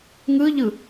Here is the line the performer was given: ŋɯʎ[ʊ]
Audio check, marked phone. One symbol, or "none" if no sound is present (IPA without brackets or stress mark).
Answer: ɯ